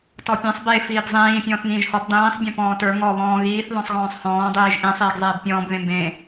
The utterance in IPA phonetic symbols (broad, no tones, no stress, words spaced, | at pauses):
tɔpʲẽsˤ be fiːbzˤĩː pʲɔ̃ːθŋĩːʒhɔb dˤĩːsˤ bʲɔ̃pɔ̃ːtə˞ ŋɔ βɔ̃ːɣiːθ ðɔ̃sˤɣɔ̃ːsˤhɔ̃ː dˤiːʒʔĩ sˤiːɡzˤeːbpʲɔ̃ːb ðẽmbẽ